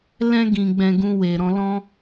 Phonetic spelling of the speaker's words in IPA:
l ɛ̃˧ ɡ ĩ˨ ɡ͡b ɛ̃˨ ɡ ũ˧ w e˨ ɾ ɔ̃˧ l ɔ̃˦

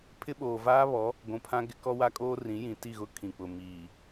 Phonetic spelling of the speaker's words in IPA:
pʰ ɪ˦ ɓ oː˨ v aː˦ β ɔ˨˦ | ɡʷ ũ˨ pʰ ã˦ ɡ ɪ˦ k ɔ˦ w a˦ kʼ oː˦ r ĩ˨˦ j ĩ˨ t i˦˨ ɣ ʊ˦ kʰ ĩ˨ k͡p ʊ˨ m iː˨

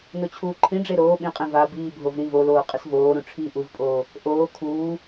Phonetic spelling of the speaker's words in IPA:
n o t͡ɕʰ uː ǃʰ ĩ ɖ͡ʐ e ɾ oː ɓ ĩ qʼ ẽ v a b iː bʱ o v ɾ ĩ v o l oː qʼ ɪ s v oː ɾ ũ ʈ͡ʂʰ iː ʔ u v pʼ oː | ʔ oː kʰ uː

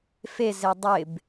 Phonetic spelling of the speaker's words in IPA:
f e z e dˤ ɪ b

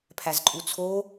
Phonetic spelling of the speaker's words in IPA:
pʰ æ z ǃʼ u t͡sʰ o

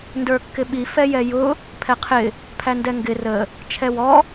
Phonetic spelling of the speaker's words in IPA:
n d ə˞ kː ɪ ɓ i f ɛ j ɛ j ʊ | pʰ ɛ qʰ ɪ | pʰ æ n d ɛ ŋ ɡ ɪ r ə | t͡ʃʰ ɛ w ɔ

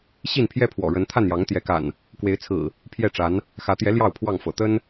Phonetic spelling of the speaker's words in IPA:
ɕ i˥˨ n pʰ j ɛ˦ pʰ w ɔ̰˨˩ ɻ ə˨˦ n t̪ʰ a˥˨ n j ɑ˨˦ ŋ t̪ j ɛ˨˦ k a̰˨˩ n | k w e˨˦ ɪ̯ t͡sʰ ɹ̩˨˩ | pʰ j ɛ˥˨ ʈ͡ʂ a˨˦ n | x ä˨˦ t̪ j ɛ˨˦ l j ɑ˥˨ ʊ̯ pʰ w ɑ˥˨ ŋ f ɤ̰˨˩ t̪ ə˦ n

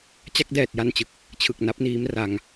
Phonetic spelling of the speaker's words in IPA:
t͡ɕ a˥˩ k̚ d ɛː˨˩ t̚ j a˧ n t͡ɕ ɯ˨˩ k̚ | t͡ɕʰ ɯ˨˩ k̚ n a˦˥ p̚ n iː˦˥ m r a˧ ŋ

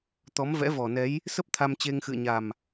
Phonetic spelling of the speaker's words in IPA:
t̪ ɔ˨˦ m v ɛ̰˧˥ v ɔ˨˩ n ɛ˨˦ j | s ə˦˥ p̚ t̪ʰ a˧ m t͡ɕ e˧ ŋ x ɨ̰˧˨ ə̯ ɲ a˨˩ m

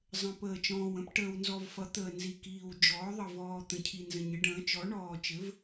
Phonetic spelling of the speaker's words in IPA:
zˤ ə̃˨˩ p əː˨˩ t͡ʃ ɔ̃ː˨˩ w ə̃˩˥ p ʈ əː˨˩ w n z ɔ˨˩ v f ʌ˩˥ t̪ əː˨˩ n z i˨˩ k iː˨˩ w d͡ʒ ɔː˩˥ ðˤ ə˨˩ v ɔː˨˩ t̪ ə̃˨˩ cʰ i˨˩ n z ə̃˨˩ ɲ ə˩˥ ɖ ə̃ː˩˥ t͡ʃ ɔ˩˥ ɳ ɔː˨˩ t͡ʃ ɘ˩˥ v

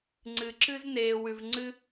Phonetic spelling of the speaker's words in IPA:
ŋ͡ǀ ɨ˨ ǁ ɨ˥ z n eː˨ w ʉ˨ v ŋ͡ǀ ɨ˦

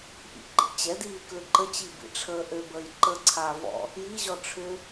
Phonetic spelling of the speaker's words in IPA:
ʔ ḭ ǃ ḭ t͡ɕ ɛ d iː k l ʏ ǃ ə t͡ɕ i b ḭ ʈ͡ʂʰ əː ʔ ø b əː j ǃ ə ǀʰ aː v ɔ̰ | j i ʑ ɔ ʈ͡ʂʰ ʏ

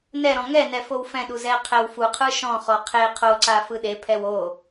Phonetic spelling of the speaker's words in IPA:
n ɛ ɾ ɔ̃ ŋ ɛ n ɛ f o w f ɛ̃ ɗ u z ɛ qʰ ɛ w f u qʰ ɯ ʃ ɔ̃ χ ɔ qʰ e qʰ o ǀ a f ɯ ɗ e pʰ ɛ w o

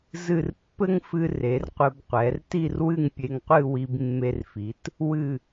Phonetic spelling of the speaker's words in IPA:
z ɨ˧˩ r pː ɘ˥ ŋ f ɨ˧ r e˩˧ r qʷ ɘ˧ b qʷ ɛ˩˧ r t i˥˧ r w ɨ˥˧ ŋ pʲ e˧ ŋ qʷ ɨ˥˧ w i˧ b mː e˧ r f i˩˧ t | w ɨ˧˩

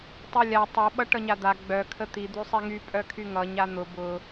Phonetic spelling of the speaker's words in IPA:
tˤ i lʲ a tˤ œ ɓ ʌ ʈ ʌ ɲ a d̪ a ɡ͡b œ kʰ ə t̪ i d̪ y sˤ i ŋ y pʼ œ kʰ y ŋ ʌ ɲ a n̪ ʊ b ʊ

